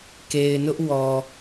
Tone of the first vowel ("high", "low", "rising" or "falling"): low